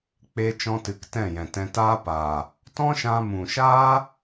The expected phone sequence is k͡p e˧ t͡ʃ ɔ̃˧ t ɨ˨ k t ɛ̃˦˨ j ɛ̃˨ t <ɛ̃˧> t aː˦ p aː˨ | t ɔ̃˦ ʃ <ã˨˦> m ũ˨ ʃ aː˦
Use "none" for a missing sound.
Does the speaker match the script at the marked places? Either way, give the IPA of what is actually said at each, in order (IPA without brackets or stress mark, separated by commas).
ɛ̃˧, ã˧